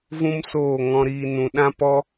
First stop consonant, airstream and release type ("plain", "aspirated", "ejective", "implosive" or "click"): implosive